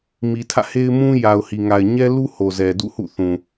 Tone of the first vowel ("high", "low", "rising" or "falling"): low